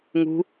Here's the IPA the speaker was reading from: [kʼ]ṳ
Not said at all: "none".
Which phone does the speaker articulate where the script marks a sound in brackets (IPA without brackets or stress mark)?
ŋ